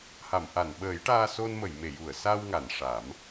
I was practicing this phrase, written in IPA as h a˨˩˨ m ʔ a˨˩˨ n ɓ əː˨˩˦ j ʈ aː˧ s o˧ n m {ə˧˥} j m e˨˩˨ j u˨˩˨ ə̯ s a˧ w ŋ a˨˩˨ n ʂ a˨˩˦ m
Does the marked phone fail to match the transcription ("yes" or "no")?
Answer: yes